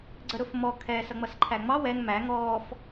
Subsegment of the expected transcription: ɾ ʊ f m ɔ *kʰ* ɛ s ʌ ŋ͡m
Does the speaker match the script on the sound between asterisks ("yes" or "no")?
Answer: yes